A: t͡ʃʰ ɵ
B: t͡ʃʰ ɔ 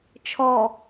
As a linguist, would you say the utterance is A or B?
B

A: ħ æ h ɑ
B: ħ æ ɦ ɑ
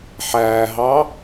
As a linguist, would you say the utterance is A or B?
B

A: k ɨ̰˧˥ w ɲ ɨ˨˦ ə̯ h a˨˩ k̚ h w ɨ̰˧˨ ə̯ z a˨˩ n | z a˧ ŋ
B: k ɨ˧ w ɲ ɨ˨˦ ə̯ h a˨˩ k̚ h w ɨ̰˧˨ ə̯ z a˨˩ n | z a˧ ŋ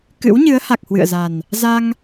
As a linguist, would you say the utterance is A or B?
A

